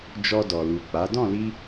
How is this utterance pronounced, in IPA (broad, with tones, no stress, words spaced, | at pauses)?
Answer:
d͡ʒɔ˧dɔ˨ lu˨k͡pa˨˦ dɔ̃˦˨li˧